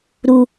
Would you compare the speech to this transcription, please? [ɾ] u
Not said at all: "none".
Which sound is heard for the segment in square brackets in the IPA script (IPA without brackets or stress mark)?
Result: ɾ